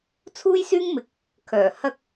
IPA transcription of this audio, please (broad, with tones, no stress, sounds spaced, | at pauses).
t͡sʰ uː˥ j s yː˥ ŋ m ɪ˨˥ k̚ | kʰ œː˨˩ h ɐ˥ k̚